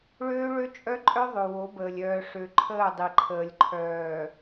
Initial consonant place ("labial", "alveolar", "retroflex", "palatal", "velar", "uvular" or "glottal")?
retroflex